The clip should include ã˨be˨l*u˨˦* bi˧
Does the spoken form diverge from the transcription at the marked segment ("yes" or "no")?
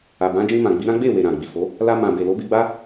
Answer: yes